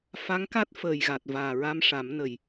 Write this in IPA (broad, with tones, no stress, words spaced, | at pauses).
fa˧˥ŋka˦˥t̚ fəː˨˩jɣa˨˩t̚ vaː˨˩ɹa˧mʂa˨˩˦mnə˨˩j